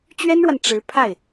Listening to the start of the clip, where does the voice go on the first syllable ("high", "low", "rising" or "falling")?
high